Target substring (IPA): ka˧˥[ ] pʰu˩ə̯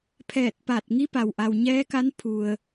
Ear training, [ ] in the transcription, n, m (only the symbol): n